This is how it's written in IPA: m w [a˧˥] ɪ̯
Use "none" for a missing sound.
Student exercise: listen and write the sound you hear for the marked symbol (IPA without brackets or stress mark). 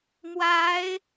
a˧˥